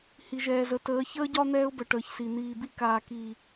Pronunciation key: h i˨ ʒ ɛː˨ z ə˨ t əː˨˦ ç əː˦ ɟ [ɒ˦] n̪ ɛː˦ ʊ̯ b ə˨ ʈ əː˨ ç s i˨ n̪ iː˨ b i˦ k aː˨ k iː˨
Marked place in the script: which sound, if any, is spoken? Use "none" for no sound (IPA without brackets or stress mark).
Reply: ɒ˦